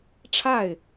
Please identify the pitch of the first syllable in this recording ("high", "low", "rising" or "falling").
falling